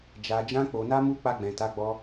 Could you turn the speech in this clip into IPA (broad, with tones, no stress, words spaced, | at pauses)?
d͡ʒa˨ d͡ʒã˧ k͡po˨na˧mu˧ k͡pa˧ɡ͡bɛ̃˨ta˨˦ɡ͡bɔ˧